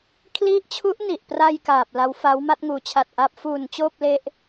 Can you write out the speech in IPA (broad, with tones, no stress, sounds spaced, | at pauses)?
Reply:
kʰ l i˦˥ ʔ t͡ɕʰ u˦˥ ʔ n i˨˩ ʔ p r a˧ j k aː˨˩ p̚ l a˦˥ w f a˦˥ w m a˥˩ t̚ ŋ uː˩˦ t͡ɕʰ a˨˩ t̚ ʔ a˦˥ p̚ f uː˨˩ n t͡ɕ oː˥˩ p̚ l e˦˥ ʔ